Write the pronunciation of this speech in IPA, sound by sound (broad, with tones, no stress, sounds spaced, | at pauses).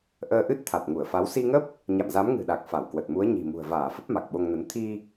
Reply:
ʔ əː˧ ʔ ɨ˦˥ t̚ t̪ʰ a˨˩ t̚ ŋ u˧˩ ə̯ f a˨˦ w s i˧ ŋ ə˦˥ p̚ | ɲ a̰˧˨ m z a˨˦ m ŋ ɨ̤˨˩ ɗ a˨˩ k̚ f a˧˩ w k w ə˨˩ t̚ m u˨˦ ə̯ ɲ i̤˨˩ m ṳ˨˩ ə̯ v aː˧˩ f ə˦˥ p̚ m a˨˩ k̚ ɓ o˧ ŋ n ə˨˦ n t̪ʰ i˧